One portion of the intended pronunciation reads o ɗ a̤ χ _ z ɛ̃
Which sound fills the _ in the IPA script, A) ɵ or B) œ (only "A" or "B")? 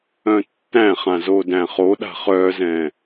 B